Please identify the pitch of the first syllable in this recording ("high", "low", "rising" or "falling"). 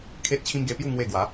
high